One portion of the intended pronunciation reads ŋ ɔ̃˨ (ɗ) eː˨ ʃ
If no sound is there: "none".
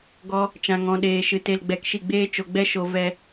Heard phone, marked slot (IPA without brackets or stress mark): ɗ